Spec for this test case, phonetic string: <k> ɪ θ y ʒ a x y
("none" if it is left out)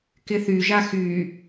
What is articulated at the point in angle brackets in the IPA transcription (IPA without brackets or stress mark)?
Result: k